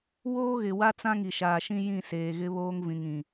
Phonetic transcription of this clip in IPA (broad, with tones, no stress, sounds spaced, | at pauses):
w oː˦ ɣ ɪ˨ w a˦ t͡s ã˦ ŋ i˨ ʃ aː˨ ʃ ĩ˦ j ĩ˦˨ s eː˨ ɣ ɪ˦ β oː˦ ŋ v ĩ˨ ŋ ĩ˨